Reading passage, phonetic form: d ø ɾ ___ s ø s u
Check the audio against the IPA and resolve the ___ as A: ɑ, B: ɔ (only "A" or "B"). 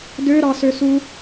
A